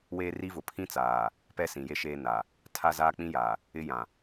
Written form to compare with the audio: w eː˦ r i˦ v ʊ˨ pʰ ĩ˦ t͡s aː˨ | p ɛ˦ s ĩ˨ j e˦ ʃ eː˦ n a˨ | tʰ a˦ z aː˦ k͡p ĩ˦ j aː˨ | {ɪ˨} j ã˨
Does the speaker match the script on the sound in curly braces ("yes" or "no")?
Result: no